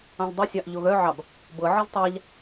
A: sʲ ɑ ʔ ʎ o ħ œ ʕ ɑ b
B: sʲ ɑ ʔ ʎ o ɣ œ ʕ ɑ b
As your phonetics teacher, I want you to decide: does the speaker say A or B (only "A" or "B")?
B